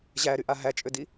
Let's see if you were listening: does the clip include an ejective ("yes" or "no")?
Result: yes